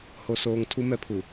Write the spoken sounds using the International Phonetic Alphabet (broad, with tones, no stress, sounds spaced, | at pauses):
h o˨ s oː˨ ŋ tʰ u˦ m ɛ˦ pʰ u˨